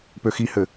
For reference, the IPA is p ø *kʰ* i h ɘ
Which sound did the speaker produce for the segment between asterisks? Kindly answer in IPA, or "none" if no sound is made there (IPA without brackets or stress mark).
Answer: x